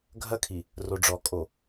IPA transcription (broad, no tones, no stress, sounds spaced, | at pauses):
ɡʱ ɐ kʰ i | r o ɖ͡ʐ ɔ kʼ o